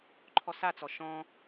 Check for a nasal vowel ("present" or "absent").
present